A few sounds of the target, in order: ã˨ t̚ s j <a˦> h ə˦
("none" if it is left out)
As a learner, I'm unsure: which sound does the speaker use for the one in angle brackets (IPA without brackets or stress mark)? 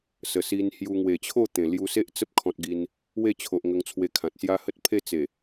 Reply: a˦